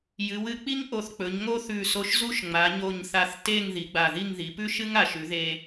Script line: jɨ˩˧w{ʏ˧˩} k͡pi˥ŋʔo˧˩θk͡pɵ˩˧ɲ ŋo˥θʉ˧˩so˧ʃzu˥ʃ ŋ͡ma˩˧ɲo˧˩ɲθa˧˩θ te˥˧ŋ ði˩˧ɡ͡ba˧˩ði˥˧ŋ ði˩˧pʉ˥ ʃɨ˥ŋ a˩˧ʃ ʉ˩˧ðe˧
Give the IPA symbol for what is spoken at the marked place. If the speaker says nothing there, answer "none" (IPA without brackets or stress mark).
ɨ˧˩